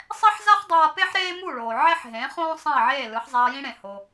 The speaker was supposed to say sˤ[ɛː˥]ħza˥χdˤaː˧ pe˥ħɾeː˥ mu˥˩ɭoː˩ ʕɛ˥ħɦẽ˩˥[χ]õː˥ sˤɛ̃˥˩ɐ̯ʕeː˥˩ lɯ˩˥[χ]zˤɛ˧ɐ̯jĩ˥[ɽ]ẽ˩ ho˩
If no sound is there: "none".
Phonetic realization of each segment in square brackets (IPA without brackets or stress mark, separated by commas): ɛ˥, χ, ħ, ɽ